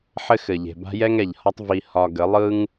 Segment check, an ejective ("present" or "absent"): absent